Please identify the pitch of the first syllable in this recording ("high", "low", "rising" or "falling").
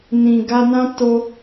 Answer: low